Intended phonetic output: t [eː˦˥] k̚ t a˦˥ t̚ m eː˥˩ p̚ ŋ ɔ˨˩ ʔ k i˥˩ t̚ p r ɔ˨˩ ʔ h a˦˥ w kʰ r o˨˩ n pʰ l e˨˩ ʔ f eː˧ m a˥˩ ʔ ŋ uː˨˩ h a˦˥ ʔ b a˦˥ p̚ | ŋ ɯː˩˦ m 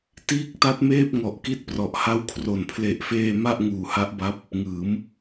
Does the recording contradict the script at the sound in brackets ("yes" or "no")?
yes